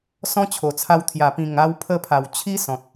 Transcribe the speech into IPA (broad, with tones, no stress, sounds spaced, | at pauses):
s ɔ̃˦ t͡ɕʰ o˨˩ t͡sʰ a˧ w t̪ʰ j a˨˩ p ĩ˨˩ ŋ a˧ w pʰ ə˧ pʰ a˨˩ w t͡ɕʰ i˦ s ɔ̃˨ t̚